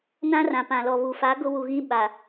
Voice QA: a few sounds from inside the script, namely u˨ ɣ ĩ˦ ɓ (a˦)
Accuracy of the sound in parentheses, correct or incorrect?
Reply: incorrect